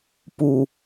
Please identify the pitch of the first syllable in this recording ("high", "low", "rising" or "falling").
low